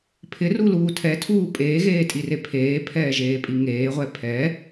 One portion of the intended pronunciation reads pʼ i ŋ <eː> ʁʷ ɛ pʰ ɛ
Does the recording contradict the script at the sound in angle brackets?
no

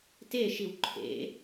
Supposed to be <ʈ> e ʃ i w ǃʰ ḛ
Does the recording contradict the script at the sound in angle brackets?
yes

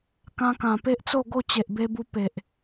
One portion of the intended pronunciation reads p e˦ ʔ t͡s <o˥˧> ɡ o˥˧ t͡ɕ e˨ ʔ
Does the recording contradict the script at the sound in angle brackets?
no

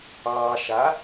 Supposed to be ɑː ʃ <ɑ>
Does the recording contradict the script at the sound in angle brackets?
yes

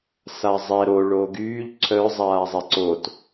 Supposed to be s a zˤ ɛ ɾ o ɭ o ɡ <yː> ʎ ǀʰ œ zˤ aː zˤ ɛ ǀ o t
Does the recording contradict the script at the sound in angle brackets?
no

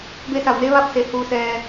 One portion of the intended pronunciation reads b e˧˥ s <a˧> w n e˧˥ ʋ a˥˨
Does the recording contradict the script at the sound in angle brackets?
yes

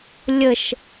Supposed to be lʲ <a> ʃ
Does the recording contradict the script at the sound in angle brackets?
yes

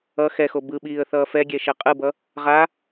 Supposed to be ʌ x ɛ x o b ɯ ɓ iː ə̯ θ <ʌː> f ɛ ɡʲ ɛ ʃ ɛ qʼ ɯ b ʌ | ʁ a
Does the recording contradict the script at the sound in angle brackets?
no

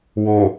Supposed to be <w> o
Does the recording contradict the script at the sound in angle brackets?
no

